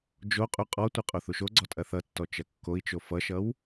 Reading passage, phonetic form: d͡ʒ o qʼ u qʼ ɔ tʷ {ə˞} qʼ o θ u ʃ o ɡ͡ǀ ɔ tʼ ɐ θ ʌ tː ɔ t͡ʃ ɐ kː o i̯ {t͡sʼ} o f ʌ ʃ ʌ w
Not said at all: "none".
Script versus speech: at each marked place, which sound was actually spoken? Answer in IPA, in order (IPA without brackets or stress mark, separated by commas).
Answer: ʌ, t͡ʃ